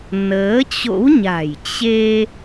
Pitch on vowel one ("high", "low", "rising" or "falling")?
rising